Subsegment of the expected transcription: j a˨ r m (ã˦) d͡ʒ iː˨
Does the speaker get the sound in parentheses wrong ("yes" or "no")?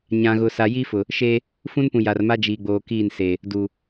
yes